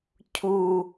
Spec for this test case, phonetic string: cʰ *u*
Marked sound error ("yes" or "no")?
no